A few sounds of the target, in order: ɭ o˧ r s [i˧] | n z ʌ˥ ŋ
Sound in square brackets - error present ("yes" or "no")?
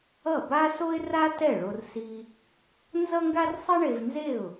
no